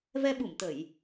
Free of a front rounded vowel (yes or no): yes